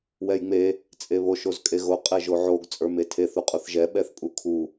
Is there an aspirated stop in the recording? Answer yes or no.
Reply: yes